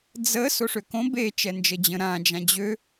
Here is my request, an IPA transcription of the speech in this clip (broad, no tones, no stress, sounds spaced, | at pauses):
d͡z ə s o ʂ ø k õ b e t͡ʃ ɛ n d͡ʒ ə d͡ʑ ə̃ ɾ ã d͡ʒ ã d͡ʑ ø